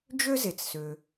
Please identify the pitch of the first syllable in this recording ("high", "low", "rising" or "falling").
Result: high